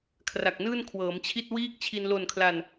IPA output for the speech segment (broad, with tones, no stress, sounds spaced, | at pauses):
kʰ r a˨˩ k̚ n ɯː˥˩ n kʰ w ɤː˩˦ m t͡ɕʰ i˥˩ t̚ w iː˥˩ k̚ t͡ɕʰ i˧ n l o˨˩ n kʰ l a˨˩ n